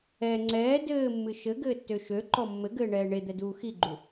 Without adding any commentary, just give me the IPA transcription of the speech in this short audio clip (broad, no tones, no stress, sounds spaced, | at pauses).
ɛ ŋ͡ǀ ɛː d ɘː mː ɨ ʃ ɘ ɡ ɘː tː ø ʃ ø ǃ ɔ mː ɘ ɡ ɘː ɳ ɛː ɳ e d̪ ɛ d uː x i ɡ͡ǃ u